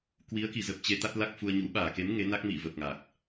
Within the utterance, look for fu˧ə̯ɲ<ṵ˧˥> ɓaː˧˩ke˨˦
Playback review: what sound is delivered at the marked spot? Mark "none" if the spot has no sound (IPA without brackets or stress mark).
ṵ˧˥